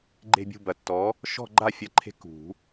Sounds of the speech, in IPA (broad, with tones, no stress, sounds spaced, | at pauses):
ɡ͡ǃ e̤˦˨ bʲ ṳ˦˨ b ɐ˨˩˦ tː ɔ˨˥ | ʃ ɔ̤˦˨ ɡ͡ǃ a˦˨ fʲ ɐ˨˩˦ ǃʰ e̤˨˥ k ṳ˨˩˦